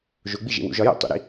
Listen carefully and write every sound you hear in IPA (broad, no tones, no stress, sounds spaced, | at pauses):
ʒ o ɡ͡b i ʒ ḛ w ṵ ʒ ɒ j o̰ tˤ ṵ ɾ ḭ